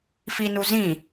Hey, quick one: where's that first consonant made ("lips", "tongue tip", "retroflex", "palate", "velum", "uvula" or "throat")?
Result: lips